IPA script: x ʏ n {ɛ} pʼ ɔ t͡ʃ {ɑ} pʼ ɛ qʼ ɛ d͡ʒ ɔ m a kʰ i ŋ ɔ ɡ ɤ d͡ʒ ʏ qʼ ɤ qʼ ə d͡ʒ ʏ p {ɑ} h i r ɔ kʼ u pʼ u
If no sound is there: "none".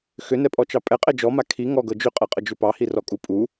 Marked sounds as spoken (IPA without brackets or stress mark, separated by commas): ɛ, ɑ, ɑ